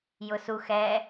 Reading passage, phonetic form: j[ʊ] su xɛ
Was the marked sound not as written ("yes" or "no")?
no